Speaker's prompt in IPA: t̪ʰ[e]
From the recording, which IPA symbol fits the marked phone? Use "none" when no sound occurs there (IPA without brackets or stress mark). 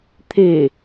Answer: e